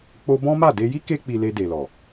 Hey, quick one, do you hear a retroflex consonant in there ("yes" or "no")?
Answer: no